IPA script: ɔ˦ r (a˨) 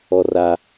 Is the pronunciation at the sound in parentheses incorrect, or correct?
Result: incorrect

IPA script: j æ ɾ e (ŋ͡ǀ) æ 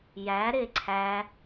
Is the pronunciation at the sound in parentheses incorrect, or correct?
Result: incorrect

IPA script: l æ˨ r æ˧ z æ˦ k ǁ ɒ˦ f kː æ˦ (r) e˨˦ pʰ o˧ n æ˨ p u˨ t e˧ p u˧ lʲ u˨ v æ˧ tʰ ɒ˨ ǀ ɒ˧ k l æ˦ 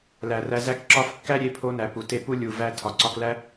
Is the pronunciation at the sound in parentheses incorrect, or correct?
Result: incorrect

